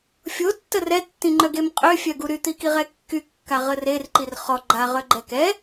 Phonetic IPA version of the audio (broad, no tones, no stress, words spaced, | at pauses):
fʲo tːərɛ tːĩŋ͡ǃœɡemqʼø fʲœɡuɾy t̪ikiʁɛkːy kːaʁərer ǃirχɔ ɡ͡ǃa ʁœɡ͡ǃɛkɛ